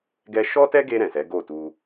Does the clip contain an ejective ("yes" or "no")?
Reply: no